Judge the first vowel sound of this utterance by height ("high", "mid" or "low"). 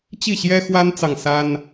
high